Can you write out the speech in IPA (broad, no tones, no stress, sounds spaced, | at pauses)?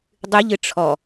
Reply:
dˤ ɨ ʎ ɨ ʈ͡ʂʰ ɔ